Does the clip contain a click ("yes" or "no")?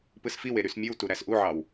no